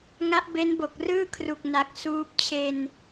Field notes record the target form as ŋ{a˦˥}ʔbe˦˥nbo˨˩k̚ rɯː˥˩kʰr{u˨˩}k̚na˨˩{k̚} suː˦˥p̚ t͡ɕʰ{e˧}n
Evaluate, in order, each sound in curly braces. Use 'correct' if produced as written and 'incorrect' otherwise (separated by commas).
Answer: correct, correct, correct, correct